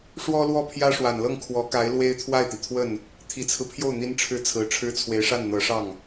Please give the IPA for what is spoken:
ʂ w ɔ˥ l w ɔ˥˩ pʰ j ä˥ ʂ w a˨˩ n l ɤ˥˩ ŋ kʰ w ɔ˧˥ k a˧˥ ɪ̯ l w e˥ ɪ̯ t̪ʰ w a˥˩ ɪ̯ t̪ i˩ t̪ʰ w ə˥˩ n | t̪ʰ i˨˩ t͡sʰ ɹ̩˦ pʰ j o˥˩ ʊ̯ n̪ i˥ n ʈ͡ʂʰ ɻ̩˥˩ t͡sʰ ɹ̩˧˥ ʈ͡ʂʰ ɻ̩˥ t͡sʰ w e˧˥ ɪ̯ ʂ a˥˩ n n̪ ɤ˧˥ ʂ ɑ˥˩ ŋ

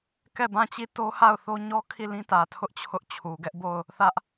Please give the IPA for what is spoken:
k ɛ˦˨ b ã˦˨ t͡ɕ i˦˨ t o˦ h a˦˨ ʊ̯ θ o˦ ɲ ɔ˦ kʰ i˦˨ l ĩ˦ t ä˨ tʰ ʊ˦ ʔ t͡ɕʰ ʊ˦ ʔ t͡ɕʰ u˨ ɡ ɛ˦ ʔ b o˦˨ ʊ̯ | θ ä˦ ʔ

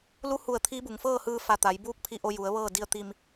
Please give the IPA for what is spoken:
l u˧˥ h u˧˩ ə̯ t̪ʰ iː˧˥ b u˩ ŋ f ɤː˥˨ h ɯː˧ f a˧˩ t̪ a˩˧ j b uː˧˥ k̚ pʰ i˧ ʔ o˧ j u˩˧ ə̯ ʋ ɤː˥˨ d i˧ ə̯ t̪ i˧ m

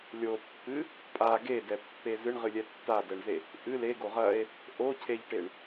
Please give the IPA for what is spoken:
lʲ o pː ɨ | pʼ a ɡ e d ɛ pː e z ɨ ɳ ʁ ɨ lʲ ɛ tː a d ɛ ɳ z e | ʔ ɨ l e ɡ o ʁ ɐ e̯ | ʔ o cʰ e ʎ ʈ e ɳ

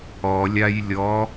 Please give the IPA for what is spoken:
ɔ lʲ a j lʲ ɔ

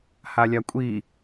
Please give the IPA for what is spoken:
h a lʲ a kʷʼ i

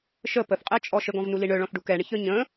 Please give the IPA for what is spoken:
ʃ ə p ə θ qʼ ɛ t͡ʃʼ ɔ ʃ ə ɡ ɔ̃ v n u l i ɳ œ ɭ ɔ̃ θ ɖ u k ɛ ɳ ə ç œ ɲ ə̃

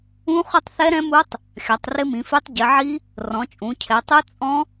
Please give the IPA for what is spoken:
ũ˦˥ χ ʊ˦˥ tˤ θ ɛ˦˥ ɾ ɛ̃˦˥ m u˦˥ tˤ | xʲ a˩˧ tˤ r ɪ˦˥ m ĩ˩˧ f e˦˥ tˤ ɟ ɪ˩˧ ʕ i˦˥ | r ɔ̃˩˧ t͡ʃʼ ũ˩˧ cʰ ɛ˩˧ tˤ u˦˥ t͡sʼ ɔ̃˦˥

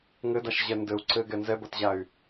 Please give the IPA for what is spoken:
ŋ ɘ d a ʃ ʑ ɛ n d ɘ u̯ ǀ ɘ ɡ ɛ n z ɛ b ɐ t ʑ a y̯

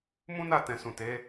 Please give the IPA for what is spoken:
m ũ˦ n a˦˨ t ɛ̃˨ s ũ˨ t e˨˦

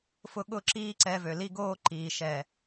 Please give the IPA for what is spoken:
f ʊ˦ ɠ ʊ˦ ǁ iː˦ ǀ ɛ˧ v ø˨ l i˦ ɡ oː˦ ǃ iː˨ ʃ ɛ˨

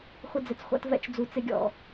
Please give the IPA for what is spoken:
χʷ ɪ˧ d͡z ɪ˨ t͡s χʷ a̰˧ t v ɛ̰˦ t͡ʃ d͡z u˧ t͡s ɪ˦ ɡʲ ɔ̰˧

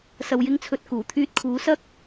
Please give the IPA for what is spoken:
s ɐ˨ w j ɪ˧ ŋ t͡sʰ ɵ˨ t̚ k uː˨˩ t̪ʰ yː˧ t̚ kʰ uː˨˥ s ɐ˥ k̚

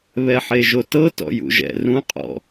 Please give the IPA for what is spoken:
β ɛ ħ e ʒ o t ɤ t ɔ̰ j ṵ ʒ ɛ̰ r ũ qʼ ɔ̰

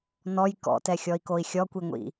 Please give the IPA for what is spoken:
n ɔ j k ɔ̰ t ɛ xʲ ɔ i̯ k o i̯ xʲ ɔ kʷ i ŋʷ ḭ

